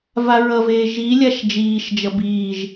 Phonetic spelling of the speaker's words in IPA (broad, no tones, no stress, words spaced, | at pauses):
vaɹʌveː ʒilʲaʃ d͡ʒiːʃd͡ʒʌ biːʒ